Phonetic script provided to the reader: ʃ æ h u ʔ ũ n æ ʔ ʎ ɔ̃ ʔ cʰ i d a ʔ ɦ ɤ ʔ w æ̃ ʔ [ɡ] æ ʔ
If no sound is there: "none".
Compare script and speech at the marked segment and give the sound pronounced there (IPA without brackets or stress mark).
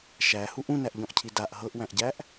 ɟ